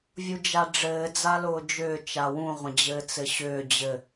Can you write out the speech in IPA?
vʲ u d͡ʒ a ɖ͡ʐ ɘː d͡z a l ʊː d͡ʒ ʏː t͡ʃ a w ũ ʁʷ ə̃ d͡ʑ ɘː t͡s ɘ ɕ ʏː d͡ʑ ɘ

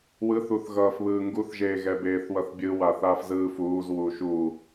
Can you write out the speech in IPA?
w ɯ θ u θ ɣ ʌː f β ɯː ŋ ɡ u θ ʒ eː ɣ ɛ b eː θ w ʌ θ bʲ ɯ w a θ aː f z ɯː f uː z w uː ʃ u

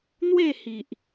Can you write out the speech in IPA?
n̪ w e˥˧ h i˨ ʔ

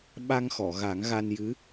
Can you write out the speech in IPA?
ɓ a˧ ŋ x ɔ˨˩˨ ɣ a˨˩˦ ŋ ɣ a˧ n j ɨ˧˥

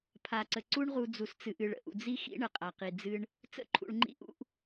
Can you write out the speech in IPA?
pʰ a˧ ǀ ə˧ ǀ u˦ ɳ ʁ u˧ d͡z u˧ s t͡s ɨ˧ ʔ ɨ˧ ɭ ə̰˦ ʔ ṵ˨ d͡z i˦ x ḭ˦ ɳ ə˨ qʼ a˨ q i˨ d͡z ɨ˧ ɳ | t͡s ə̰˦ ǃʰ ṵ˧ ɭ ŋ͡ǃ ḭ˦ ʔ ṵ˦ ʔ

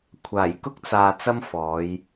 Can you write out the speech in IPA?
kʷʰ aː˨˩ j k ʊ˥ k̚ t͡s aː˨ t͡s ɐ˥ m f ɔː˨˧ j

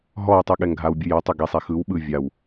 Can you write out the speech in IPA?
ɦ ɔ w tˤ u ɠ ɛ ŋ ɡʱ a w bʲ ɯ j ɔ tˤ u ɡ e sˤ ɛ x ɯ w ɓ ɯ vʲ a w

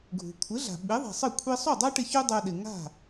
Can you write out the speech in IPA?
ɡʱ ṳ˩ kʷʰ ɪ˩˥ ɮ a̤˩ ɓ i˩˥ ðˤ e̤˩ sˤ ɘ˥˩ kʷʰ i˧ sˤ u˥˩ dˤ a˥ ʈ ɪ˧ ç u˥ dˤ œ˧ ɗ ɪ˩ ŋ a̤˥˩

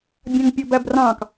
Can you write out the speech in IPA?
bʲ ɑ̃ ŋ pʲ ɔ b æ b r ɑ̃ k

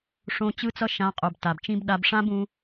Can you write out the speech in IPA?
ʂ õ˧ t͡ɕ ɯ˦ t͡s ʌ˦ ʃ ã˦ qʼ o˧ b t a˨ b t͡ʃ ĩ˦ b ɗ a˧ b ʂ ã˦ b ũ˧

